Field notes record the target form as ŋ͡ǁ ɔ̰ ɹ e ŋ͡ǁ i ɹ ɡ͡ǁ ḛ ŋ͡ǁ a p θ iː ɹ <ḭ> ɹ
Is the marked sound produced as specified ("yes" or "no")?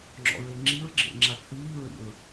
yes